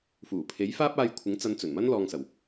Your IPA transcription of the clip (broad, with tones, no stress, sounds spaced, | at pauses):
f uː˨˩ pʰ e˨˥ j f aː˥ p̚ aː˧ j kʷʰ ɪ˨˥ ŋ t͡s ɐ˧ n t͡s ɵ˨˩ n m ɐ˥ n l ɔː˧ ŋ s ɐ˨˩ w